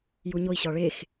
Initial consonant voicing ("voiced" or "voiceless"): voiced